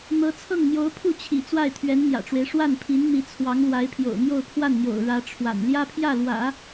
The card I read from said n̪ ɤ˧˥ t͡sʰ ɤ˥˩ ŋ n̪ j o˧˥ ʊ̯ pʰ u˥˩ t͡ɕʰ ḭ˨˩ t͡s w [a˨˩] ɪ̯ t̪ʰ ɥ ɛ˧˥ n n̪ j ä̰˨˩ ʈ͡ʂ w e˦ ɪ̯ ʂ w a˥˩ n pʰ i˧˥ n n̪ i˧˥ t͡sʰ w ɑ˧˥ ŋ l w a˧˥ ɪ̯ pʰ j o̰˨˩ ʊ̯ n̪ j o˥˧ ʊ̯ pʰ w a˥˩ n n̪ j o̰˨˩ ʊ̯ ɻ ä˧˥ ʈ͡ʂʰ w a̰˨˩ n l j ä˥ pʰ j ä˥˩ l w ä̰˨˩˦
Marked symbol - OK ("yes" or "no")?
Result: no